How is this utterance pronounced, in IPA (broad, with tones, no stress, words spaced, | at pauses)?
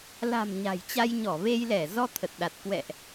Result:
la̤˨˩m ɲa̤˨˩jt͡ɕa˧j ɲɔ˧˩ve˧jlɛ˧˩ zɔ˧t̪ʰə˨˩t̚ɗa˨˩t̚ kwɛ̰˧˨ʔ